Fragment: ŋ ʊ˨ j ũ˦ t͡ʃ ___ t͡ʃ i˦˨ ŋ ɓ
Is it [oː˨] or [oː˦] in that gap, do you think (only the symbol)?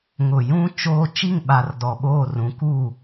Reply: oː˦